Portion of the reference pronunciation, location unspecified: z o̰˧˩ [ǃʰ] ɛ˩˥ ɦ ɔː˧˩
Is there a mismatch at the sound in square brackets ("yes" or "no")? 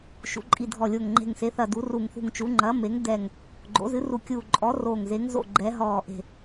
yes